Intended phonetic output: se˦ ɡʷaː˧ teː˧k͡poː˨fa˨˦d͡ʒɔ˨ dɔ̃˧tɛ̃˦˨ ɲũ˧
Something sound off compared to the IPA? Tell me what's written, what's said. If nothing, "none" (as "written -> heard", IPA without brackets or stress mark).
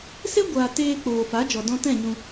none